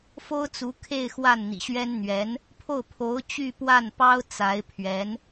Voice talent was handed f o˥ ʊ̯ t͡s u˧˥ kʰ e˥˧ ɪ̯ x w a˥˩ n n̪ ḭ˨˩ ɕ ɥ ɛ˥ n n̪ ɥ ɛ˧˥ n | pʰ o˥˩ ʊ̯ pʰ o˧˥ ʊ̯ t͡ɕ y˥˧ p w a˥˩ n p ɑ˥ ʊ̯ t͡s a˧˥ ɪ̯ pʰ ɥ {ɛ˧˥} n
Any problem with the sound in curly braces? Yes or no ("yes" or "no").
no